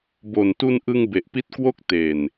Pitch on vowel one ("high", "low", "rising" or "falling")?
low